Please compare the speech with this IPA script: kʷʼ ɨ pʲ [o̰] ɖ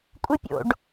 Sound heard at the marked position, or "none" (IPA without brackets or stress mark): o̰